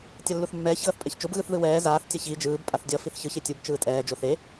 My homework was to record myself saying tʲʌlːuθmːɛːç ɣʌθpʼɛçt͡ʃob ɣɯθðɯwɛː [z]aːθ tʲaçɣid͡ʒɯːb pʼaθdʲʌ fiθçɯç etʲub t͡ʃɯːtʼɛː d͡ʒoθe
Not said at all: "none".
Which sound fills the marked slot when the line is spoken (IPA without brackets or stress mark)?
z